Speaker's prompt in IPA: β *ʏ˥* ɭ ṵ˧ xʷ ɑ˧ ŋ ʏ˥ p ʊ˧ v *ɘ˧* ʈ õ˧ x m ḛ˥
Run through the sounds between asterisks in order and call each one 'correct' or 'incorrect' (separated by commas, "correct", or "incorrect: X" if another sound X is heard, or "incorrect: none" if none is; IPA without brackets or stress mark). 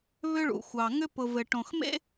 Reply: correct, correct